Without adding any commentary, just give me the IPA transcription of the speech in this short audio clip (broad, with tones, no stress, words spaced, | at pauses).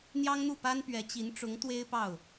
n̪jɑ˥ŋn̪u˥˩pa˥npɥɛ˧˥ t͡ɕi˧˥n ʈ͡ʂʊ˧˥ŋ t̪we˥ɪ̯pɑ˥˩ʊ̯